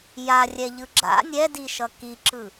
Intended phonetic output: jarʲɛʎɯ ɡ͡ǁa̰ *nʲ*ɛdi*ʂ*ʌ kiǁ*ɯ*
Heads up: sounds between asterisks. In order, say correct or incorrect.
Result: correct, incorrect: ʃ, correct

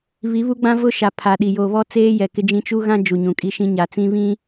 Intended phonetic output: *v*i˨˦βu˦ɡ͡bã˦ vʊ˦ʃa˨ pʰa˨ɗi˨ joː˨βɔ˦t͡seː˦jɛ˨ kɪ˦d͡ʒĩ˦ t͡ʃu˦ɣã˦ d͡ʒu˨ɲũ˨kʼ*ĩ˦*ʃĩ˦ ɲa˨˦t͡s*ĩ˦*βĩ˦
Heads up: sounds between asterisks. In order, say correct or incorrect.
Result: incorrect: β, incorrect: i˦, correct

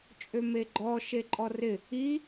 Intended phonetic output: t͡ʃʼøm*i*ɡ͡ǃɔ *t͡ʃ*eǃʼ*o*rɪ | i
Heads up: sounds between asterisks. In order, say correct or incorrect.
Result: incorrect: e, incorrect: ʃ, incorrect: ɔ

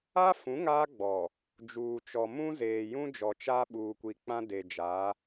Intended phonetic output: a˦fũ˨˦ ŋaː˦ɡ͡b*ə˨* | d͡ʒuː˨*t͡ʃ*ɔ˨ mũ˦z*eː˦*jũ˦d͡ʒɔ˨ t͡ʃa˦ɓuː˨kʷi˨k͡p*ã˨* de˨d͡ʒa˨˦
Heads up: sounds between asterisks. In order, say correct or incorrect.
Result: incorrect: ɔ˨, correct, incorrect: eː˨, incorrect: ã˦

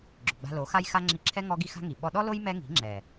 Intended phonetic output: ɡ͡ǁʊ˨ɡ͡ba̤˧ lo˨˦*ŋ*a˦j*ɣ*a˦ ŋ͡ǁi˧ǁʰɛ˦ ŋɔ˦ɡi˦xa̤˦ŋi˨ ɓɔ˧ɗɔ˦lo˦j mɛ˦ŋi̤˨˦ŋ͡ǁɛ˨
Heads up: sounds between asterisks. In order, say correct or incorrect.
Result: incorrect: x, incorrect: x

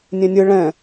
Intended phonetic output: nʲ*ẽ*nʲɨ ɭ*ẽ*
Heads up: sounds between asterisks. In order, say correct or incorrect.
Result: correct, incorrect: ɛ̃

